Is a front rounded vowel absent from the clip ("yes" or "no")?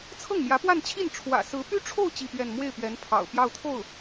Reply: no